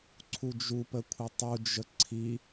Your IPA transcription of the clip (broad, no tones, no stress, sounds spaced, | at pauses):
ǀʰ u d͡ʒ u p ə kʷʰ ə tˤ u d͡ʒ ə ǀʰ i